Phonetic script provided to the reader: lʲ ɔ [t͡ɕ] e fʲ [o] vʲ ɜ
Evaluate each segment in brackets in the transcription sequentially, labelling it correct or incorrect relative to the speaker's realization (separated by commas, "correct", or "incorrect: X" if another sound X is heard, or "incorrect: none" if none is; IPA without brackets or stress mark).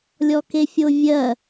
incorrect: k, correct